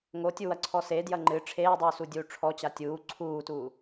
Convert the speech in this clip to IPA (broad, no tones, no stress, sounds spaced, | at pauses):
ŋ o tʲ u w ɐ ǀʰ ɔ s e d j ɐ ŋ͡ǃ ɨ ʈ͡ʂʰ eː dˤ uː s u dʲ uː ʈ͡ʂʰ ɔ t͡ɕ a tʲ uː ǀʰ uː t uː